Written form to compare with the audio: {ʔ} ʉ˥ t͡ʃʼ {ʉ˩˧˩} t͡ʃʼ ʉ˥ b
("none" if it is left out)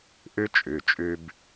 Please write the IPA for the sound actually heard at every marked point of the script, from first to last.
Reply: ʔ, ʉ˩˧˩

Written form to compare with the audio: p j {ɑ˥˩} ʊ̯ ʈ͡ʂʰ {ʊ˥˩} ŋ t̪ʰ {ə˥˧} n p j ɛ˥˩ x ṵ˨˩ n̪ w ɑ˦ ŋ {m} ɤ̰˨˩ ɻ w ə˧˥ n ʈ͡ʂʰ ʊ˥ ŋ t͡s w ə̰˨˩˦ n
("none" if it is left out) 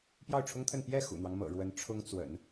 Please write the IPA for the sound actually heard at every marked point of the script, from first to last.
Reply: ɑ˥˩, ʊ˥, ə˥˧, m

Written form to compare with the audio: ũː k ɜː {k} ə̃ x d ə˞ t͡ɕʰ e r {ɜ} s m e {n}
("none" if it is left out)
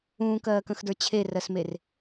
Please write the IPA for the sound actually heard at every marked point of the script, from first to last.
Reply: k, ɜ, r

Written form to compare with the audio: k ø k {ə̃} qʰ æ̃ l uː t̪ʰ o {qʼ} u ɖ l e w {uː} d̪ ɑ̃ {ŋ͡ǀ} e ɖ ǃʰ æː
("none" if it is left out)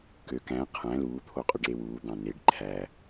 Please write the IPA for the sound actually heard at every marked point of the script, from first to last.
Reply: æ̃, qʼ, uː, n

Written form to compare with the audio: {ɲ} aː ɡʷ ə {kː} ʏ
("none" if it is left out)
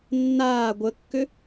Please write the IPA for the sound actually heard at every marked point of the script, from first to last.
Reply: nː, kː

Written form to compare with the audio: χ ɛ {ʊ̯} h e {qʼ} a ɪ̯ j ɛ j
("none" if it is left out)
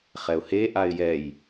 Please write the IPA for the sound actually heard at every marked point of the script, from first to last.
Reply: ʊ̯, ʔ

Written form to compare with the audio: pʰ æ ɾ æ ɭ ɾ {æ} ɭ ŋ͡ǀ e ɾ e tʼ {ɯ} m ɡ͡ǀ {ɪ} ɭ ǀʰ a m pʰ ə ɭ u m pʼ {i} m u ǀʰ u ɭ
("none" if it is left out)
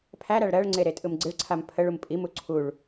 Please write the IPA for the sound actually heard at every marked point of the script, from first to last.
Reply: ɜ, ɯ, ɪ, i

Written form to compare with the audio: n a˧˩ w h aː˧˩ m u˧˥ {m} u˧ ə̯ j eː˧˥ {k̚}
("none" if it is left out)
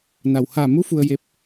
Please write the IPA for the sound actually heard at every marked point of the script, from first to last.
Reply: f, p̚

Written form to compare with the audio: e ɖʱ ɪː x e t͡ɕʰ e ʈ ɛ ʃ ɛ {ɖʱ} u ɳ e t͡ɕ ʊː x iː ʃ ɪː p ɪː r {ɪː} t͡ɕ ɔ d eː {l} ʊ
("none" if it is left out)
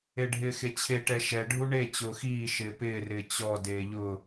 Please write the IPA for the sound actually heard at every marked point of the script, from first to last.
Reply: ɖʱ, ɪː, ʎ

